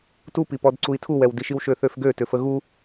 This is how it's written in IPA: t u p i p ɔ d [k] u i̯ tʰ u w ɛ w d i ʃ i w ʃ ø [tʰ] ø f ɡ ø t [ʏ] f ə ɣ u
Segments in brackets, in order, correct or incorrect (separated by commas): incorrect, incorrect, correct